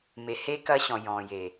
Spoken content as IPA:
m e˨ h e˦ k ɐ˦ ɕ ɔ̃˨ j ɔ̃˨ j e˨

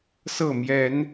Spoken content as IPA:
s ɤ˥˨ m j ɛ˨˦ n

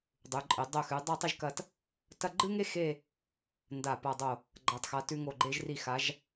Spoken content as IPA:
dˤ ʉ˩˧ ǃʼ e˩˧ dˤ ɵ˧˩ x ʉ˩˧ dˤ a˥˧ tˤ i˥˧ ʒ k ɐ˧ t | t ɐ˥˧ ɡ͡ǃ ɨ˥ ŋ e˥ x e˥˧ | n d a˧˩ p a˧˩ dˤ o˧˩ | ɡ͡ǃ a˩˧ tˤ x a˩˧ t ʉ˧ ŋ o˧˩ ɡ͡ǃ e˧ ʒ r i˧˩ x a˩˧ ʒ

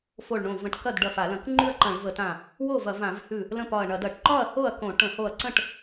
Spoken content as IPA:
f o˧˩ ɭ ɳ õ˧˩ v ə̃˧˩ ʈ k ɐ˥˩ d ɖ ɐ˧˩ f a˧˩˧ l ɐ̃˧˩˧ k ŋ͡ǃ ʉ˥˩ ɐ̯ ǃ ɐ̃˧˩˧ ɭ v ə˧˩˧ t ã˧˩ | w o˥˩ v ɐ˧˩˧ v ã˧˩˧ v h ʉ˧˩ | l ə̃˥˩ p ɒ˧˩ ɐ̯ ɳ ɐ˧˩˧ d ɐ˧˩˧ ʈ ǃ ɒ˥˩ ɐ̯ h o˥˩ ɐ̯ k õ˧˩˧ ʈ ə̃˧˩˧ h o˧˩ ɐ̯ ǀ ə̃˥˩ ʈ

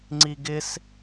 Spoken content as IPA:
ŋ͡ǀ i ɡ ɪ s

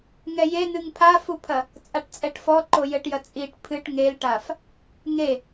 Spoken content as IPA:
ŋ ɛ j e n̪ ɨ ŋ pʰ a f u pʰ ɐ | t͡sʼ a ʈ t͡sʼ ɛ ʈ f ɔ ǃ o j ɘ ʈ j ɐ t͡sʼ i ʈ pʰ ɨ ʈ ŋ e l ʈ a f | ŋ e

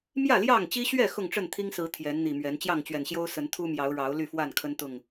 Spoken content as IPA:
m j ä˥˨ l j ɑ˥˨ ŋ t͡ɕ i˦ ɕ ɥ ɛ˥˨ x ʊ˥˨ ŋ ʈ͡ʂ ə˥˨ n t̪ʰ i˦ ŋ s ɹ̩˨˦ t̪ʰ j ɛ˨˦ n n̪ i˨˩ m ɥ ɛ˨˦ n t͡ɕ j ɑ˥˨ ŋ t͡ɕ ɥ ɛ˨˩ n ɕ j o˦ ʊ̯ s ə˨˦ n t̪ʰ u˦ m j ɑ˨˦ ʊ̯ ɻ ɑ˨˦ ʊ̯ l y˥˨ f w a˥˨ n kʰ ə˦ n t̪ ʊ˥˨ ŋ

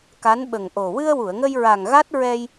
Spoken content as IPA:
k a˧˥ n ɓ ə˨˩ ŋ ʔ o˨˩ w ɨ˧ ə̯ w u˨˩˨ ə̯ ŋ ə˧ j ɹ a˨˩ ŋ ɣ a˦˥ t̚ ɹ ɛ˧ j

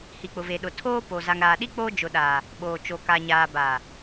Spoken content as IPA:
h i˨ k͡p ʊ˨ v e˨ ɗ ʊ˨ tʰ oː˦ p o˨ z a˨ ŋ ɾ aː˨ ɗ i˦ k͡p oː˦ d͡ʒ ʊ˨ ɗ aː˨ | ɓ oː˨ t͡ʃ o˨ k a˨ ɲ aː˨ b aː˨

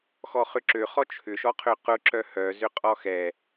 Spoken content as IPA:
x ɔ χ ʏ ǁ ø χ ɔ t͡ʃʰ ʏ ʃ ɔ qʰ ø q ʊ ǁ œ h œ z ʏ qʼ ɔ x ɛ

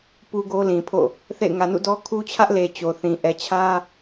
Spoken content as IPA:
p u˦ ɡ o˦ l ĩ˨ pʰ o̰˦˨ | θ ḛ˦˨ ɪ̯ ŋ ä˨ n ṵ˦˨ d ɔ˦ kʰ u˦ t͡ɕʰ ä˦ ʔ l e˨ t͡ɕ o˨ θ ĩ˨ ʔ ɛ˨ t͡ɕʰ ä˦

